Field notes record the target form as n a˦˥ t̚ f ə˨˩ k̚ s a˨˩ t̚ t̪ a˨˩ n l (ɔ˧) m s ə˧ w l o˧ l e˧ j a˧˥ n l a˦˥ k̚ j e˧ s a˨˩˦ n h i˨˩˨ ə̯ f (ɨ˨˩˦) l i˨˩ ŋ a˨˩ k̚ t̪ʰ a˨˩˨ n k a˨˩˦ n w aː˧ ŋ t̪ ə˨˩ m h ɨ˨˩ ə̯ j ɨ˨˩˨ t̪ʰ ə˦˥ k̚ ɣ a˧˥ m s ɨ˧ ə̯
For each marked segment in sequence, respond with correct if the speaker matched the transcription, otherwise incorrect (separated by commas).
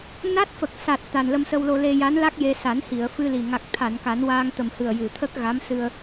incorrect, incorrect